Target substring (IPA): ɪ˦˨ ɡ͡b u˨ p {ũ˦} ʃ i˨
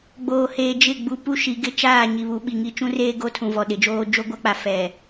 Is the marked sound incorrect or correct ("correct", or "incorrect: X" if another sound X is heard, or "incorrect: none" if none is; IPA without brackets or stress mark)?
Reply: incorrect: u˦